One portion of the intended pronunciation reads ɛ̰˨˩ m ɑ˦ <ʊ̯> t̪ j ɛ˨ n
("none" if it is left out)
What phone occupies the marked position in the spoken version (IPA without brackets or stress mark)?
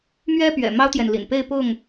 ʊ̯